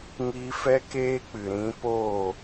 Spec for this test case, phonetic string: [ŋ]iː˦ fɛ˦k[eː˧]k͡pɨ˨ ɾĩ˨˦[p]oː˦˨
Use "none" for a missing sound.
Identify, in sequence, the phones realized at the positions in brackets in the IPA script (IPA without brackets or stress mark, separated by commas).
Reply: ŋ, eː˦, p